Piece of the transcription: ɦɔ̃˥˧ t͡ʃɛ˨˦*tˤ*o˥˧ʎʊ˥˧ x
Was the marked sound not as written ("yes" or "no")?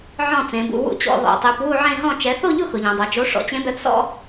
yes